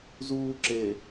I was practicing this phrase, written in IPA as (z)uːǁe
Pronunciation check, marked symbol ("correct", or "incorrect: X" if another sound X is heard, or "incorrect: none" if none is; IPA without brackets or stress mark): correct